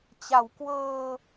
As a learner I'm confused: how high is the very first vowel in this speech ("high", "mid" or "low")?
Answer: low